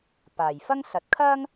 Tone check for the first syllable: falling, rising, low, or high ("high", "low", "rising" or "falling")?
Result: low